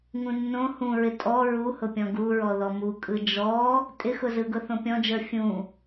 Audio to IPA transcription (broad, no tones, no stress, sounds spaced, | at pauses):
ŋ ũ nː õ h ũ ɹ ɪ tʼ ɔ ɹ u h ʊ pʲ ɔ̃ ɡ u ɹ ɔ ð ɔ m u kʼ ɯ d͡ʒ ɔ | tʼ ɪ x ʊ z ɯ ɡ ʊ θ õ pʲ ɔ̃ d͡ʒ ə˞ fʲ ũ